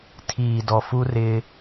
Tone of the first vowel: low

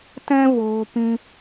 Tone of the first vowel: high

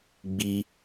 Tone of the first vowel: high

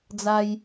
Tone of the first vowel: high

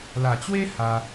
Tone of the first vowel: low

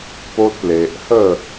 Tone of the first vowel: high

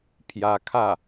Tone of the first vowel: rising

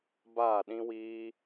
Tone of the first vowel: falling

